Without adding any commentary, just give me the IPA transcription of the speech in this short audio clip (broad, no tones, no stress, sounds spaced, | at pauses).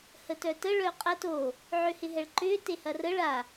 h ə t œ t ə ɭ œ qʼ ɐ t o | ʕ ø h ɪ ɦ ɛ ɭ ǃ ʏ t e h ɐ r ə ɭ a